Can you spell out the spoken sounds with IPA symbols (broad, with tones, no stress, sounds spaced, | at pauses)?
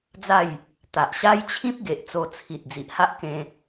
d͡z a˥˧ j | t̪ a˨ ʔ ɕ a˦ j t͡ɕʰ ĩ˦ p̚ ɡ e˨ ʔ t͡s o˧ t͡sʰ i˨ t̚ d͡z i˨ ʔ h a˦ ʔ k ẽ˧